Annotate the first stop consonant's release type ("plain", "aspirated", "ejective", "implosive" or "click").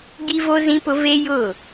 plain